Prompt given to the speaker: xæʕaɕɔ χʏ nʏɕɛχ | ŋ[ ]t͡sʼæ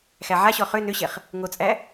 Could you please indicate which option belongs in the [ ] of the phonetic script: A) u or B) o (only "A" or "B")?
B